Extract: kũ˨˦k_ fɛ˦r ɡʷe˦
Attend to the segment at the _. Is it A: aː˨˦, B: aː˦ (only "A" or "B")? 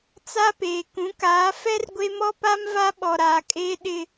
A